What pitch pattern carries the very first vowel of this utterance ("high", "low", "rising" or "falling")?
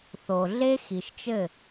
low